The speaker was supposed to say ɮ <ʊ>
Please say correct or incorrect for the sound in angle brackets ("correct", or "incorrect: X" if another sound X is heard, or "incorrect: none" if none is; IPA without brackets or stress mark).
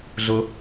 correct